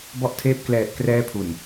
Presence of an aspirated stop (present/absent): present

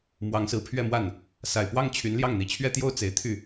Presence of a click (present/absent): absent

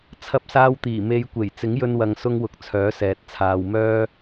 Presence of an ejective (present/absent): absent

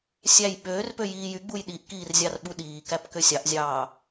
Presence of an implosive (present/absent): present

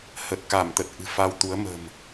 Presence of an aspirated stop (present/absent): absent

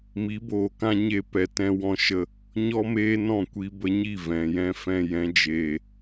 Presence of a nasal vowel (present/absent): present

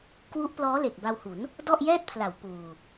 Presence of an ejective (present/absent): absent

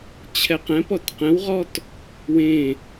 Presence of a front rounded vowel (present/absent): absent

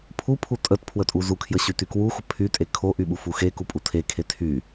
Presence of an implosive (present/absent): present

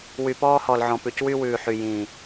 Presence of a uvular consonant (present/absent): absent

